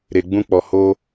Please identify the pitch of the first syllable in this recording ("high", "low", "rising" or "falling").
low